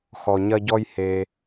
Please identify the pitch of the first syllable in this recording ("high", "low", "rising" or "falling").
low